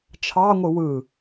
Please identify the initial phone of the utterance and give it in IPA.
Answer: t͡ʃʰ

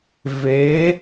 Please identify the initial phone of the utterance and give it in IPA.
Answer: v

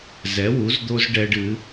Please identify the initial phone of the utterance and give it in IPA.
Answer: z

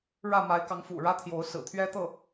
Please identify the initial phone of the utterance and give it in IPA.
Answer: ɻ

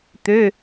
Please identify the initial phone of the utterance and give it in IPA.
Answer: t̪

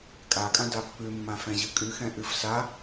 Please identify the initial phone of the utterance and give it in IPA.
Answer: kʼ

